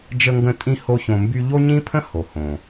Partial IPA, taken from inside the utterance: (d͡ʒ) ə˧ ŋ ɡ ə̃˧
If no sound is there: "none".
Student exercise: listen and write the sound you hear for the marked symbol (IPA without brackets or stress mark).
d͡ʒ